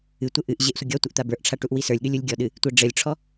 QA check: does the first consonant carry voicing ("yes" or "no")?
no